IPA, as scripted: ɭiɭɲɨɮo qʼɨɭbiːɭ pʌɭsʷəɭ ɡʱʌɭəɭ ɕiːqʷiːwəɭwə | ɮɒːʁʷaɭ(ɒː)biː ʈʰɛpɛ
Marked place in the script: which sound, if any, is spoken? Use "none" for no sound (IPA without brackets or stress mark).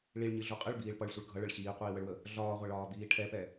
ɒː